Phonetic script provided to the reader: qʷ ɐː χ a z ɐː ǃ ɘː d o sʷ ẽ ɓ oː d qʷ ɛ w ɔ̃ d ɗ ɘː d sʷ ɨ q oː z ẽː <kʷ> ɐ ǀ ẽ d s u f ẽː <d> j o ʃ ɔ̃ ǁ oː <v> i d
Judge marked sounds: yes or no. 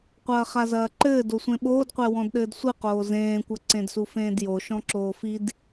yes, yes, no

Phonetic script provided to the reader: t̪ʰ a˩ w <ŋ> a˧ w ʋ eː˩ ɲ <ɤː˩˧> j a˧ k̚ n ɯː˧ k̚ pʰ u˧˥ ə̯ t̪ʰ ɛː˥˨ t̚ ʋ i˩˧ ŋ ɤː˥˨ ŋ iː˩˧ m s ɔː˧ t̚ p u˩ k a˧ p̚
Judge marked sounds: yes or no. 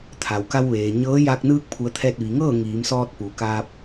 no, no

